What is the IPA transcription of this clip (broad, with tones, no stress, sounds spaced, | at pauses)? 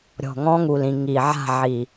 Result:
ɾʲ ɔ̤˨˩ ŋ ɔ̃˧˥ ŋ u˨˩ l ĩ˨˩ ŋ i˨˩ ʕ a̤˥˨ ʕ i˨˩